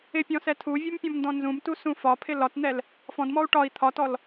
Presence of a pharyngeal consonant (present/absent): absent